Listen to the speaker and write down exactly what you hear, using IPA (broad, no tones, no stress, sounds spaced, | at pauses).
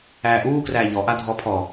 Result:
æː ʔ uː k r æː ʎ ɔ ʔ a dʱ ɔ pʰ ɔ